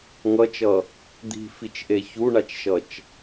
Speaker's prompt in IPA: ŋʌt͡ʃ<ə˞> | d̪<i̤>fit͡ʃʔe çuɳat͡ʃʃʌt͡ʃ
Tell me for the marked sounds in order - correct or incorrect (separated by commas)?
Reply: incorrect, correct